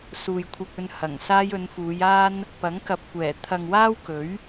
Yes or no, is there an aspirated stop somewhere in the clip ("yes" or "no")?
yes